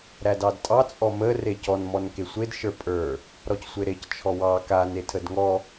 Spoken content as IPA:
ɾ æ d ɑ d tʼ ɑ t͡sʼ ɔ m ə r e c ɔ n m ɔ n k e sʷ e d ʃ ə˞ pʼ ə˞ | ɾ ɔ c sʷ e ɾ e c t͡ʃʰ ɔ w ɑ k a n e tʰ ə d ŋ ɔ

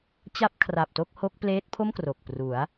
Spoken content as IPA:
t͡ɕ a˥˩ p̚ kʰ r a˨˩ p̚ t o˥˩ k̚ h o˦˥ k̚ p l eː˦˥ t̚ pʰ o˥˩ m k r o˨˩ k̚ p r u˩˦ a̯

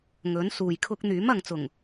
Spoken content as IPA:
ŋ ɵ˨˥ n s uː˨ j kʰ ʊ˥ k̚ n̪ yː˨˥ m ɐ˨ ŋ t͡s ʊ˨˩ ŋ

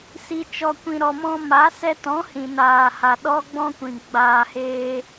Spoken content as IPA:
s i˨ t͡ʃ ɔ˨ kʷ ĩ˨ ɾ ɔ˨ m ɔ̃˧ m a˨˦ s ɛ˧ t ɔ̃˨˦ h ĩ˨ n aː˨ h a˨ ɗ ɔ˦ ɡ͡b ɔ̃˦ kʷ ĩ˨ ɡ͡b aː˨ h eː˧

